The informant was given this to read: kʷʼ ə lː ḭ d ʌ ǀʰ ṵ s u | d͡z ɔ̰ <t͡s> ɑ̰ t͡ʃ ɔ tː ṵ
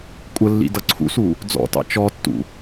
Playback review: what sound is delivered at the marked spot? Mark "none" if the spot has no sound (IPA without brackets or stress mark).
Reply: t